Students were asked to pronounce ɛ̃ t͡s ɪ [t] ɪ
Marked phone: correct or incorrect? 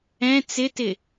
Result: correct